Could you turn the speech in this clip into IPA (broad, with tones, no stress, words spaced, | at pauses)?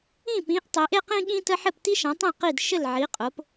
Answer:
ĩ˥˨pĩ˨˥ʔ tˤe˨˥ʔe˥qĩ˥ɠĩ˥ tə˥ ħɘ˥˨p ti˥ʃã˨˥tˤĩ˥˨ qi˥˨dʃɘ˥˨l ʕi˨˥qʼo˨˥p